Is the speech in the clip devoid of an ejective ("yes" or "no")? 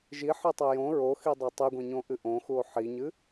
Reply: yes